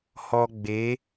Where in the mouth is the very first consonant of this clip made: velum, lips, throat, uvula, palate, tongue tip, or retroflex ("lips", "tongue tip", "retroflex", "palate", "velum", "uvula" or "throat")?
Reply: throat